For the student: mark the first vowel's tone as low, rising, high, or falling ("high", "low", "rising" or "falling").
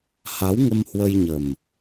rising